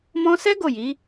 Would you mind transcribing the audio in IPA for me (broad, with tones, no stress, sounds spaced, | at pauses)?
m ɔ̃˦ s ɛ˦ ɡ o˦˨ j i˨˦